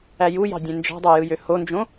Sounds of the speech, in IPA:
æ j u j ɑ̤ dʲ ẽ n d͡ʒ ɑ̤ dˤ æ j ɯ j ø h o n d͡ʒ õ

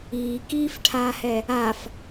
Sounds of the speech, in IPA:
iː k iː f ʈʰ aː h ɛ | a f

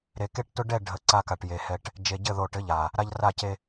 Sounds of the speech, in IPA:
ɾ e˨ k e˦ ʈ t ʊ˦ ɖ ɛ˦˨ ɖʱ ə˨ ǀ a˦ k a˨ ʈ j e˨ h ɛ˨ ʈ | d͡ʒ e˨ ɟ ɘ˦˨ ð o˨ ʈ ɘ˨˦ ʎ a˨ | ɾ a˦ ʎ r a˦˨ c e˦

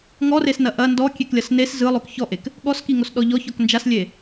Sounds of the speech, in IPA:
ŋ ɔ r e s n ɐ ʔ ɐ n d ɔ kʲ e k lʲ ɐ s n e s z ɯ lˠ o k ç ɔ ʔ e k | ɠ ɔ s k i ŋ o s ɗ ɔ ʎ ɔ ç ɔ k n d͡ʒ a s lʲ e

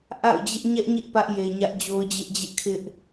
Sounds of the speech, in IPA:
ʔ a̰˦˨ ʊ̯ d͡ʑ ɪ˦ ʔ ɲ ɛ˦ ʔ ɲ ɪ˦ ʔ p ä˦ ʔ j e˨ ɲ ä˦ ʔ d͡ʑ o˦ ʊ̯ d͡ʑ ɪ˦ ʔ d͡ʑ ɪ˦ ʔ kʰ ɪ˦ ʔ

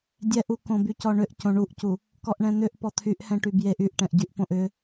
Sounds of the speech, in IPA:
dʲ ɛ ʔ u k õ b y c ɔ ɳ ʏ ʔ c õ ɳ u ʔ c u | k ɔ ʔ ɳ ɛ̃ n̪ ʏ ʔ p ɔ t̪ʰ y ʔ h ɛ̃ ʈ y b j e ʔ y ʔ ʈ ɛ̃ ʔ ɟ y ʔ p õ ʔ ʏ

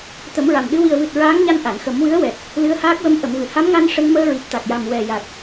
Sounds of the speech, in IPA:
t̪ ə˨˩˦ m ɹ a˨˩ m ɗ ɨ˧ w i˨˩ ə̯ v ɨ˨˩ t̚ ɹ aː˧˥ ŋ ɲ a˧ n ʔ a˨˩˨ n x ə˨˩˦ m w ɨ˧˥ ə̯ w ɛ˨˩ t̚ | l ɨ˧˥ ə̯ h aː˦˥ k̚ w ə˧˥ m ʔ ə˨˩˨ m v ɨ˨˩˨ h a˧˥ m ŋ a˧ n ʂ ə˧ ŋ m əː˧ ɹ i˨˩ p̚ t̪ a˨˩ k̚ j a˨˩ m w ɛ˨˩ j a˨˩ k̚

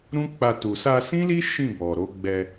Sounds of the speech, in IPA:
ɾ ũ˦ k͡p a˧ t u˨ s a˧ s ĩ˦ l i˦ ʃ ĩ˦˨ b ɔ˨ ɾ o˨˦ ɡ͡b ɛ˧

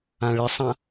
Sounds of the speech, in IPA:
ã ɭ ɪ sˤ ã

